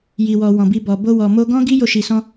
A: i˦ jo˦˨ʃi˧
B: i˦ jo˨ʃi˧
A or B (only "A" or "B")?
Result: A